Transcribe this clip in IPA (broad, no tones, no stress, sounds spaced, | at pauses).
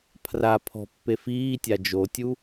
pʰ r a pʰ ɔ̤ pː e f iː tʲ a d͡ʒ o tʲ u